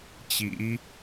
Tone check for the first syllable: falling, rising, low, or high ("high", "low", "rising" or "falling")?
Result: rising